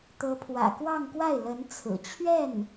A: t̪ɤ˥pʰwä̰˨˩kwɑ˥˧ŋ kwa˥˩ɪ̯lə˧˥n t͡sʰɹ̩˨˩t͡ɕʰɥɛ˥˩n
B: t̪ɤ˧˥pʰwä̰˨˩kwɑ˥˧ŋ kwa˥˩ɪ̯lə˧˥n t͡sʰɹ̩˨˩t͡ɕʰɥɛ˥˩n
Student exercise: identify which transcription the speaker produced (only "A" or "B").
B